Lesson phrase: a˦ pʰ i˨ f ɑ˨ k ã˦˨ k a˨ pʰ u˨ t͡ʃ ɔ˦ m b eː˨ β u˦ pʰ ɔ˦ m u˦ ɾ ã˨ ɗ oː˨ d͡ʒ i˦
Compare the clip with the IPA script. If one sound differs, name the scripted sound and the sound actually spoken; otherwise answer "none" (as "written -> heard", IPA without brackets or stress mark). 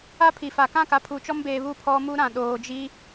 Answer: ɑ˨ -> a˨